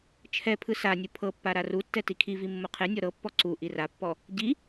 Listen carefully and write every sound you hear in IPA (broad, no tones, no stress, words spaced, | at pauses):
t͡ʃʰɛpʰɯ sanʲu pʰɤpːa ɾarutːɛ tikʰivi mːoqʰenʲɔ ɾɤpːɔ ǀu ʔirapːɔ | ɟi